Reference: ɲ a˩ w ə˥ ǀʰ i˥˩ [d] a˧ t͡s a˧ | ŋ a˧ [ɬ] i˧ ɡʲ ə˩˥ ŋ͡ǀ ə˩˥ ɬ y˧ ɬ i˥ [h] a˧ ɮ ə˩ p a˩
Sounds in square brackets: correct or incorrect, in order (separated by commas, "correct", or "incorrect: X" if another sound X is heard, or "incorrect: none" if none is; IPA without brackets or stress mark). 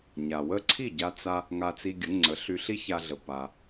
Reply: incorrect: ɟ, incorrect: t͡s, incorrect: ç